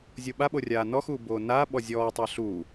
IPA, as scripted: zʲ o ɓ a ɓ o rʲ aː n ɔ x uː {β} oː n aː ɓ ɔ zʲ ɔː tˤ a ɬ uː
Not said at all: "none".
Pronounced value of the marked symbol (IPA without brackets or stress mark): b